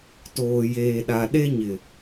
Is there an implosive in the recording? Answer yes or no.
yes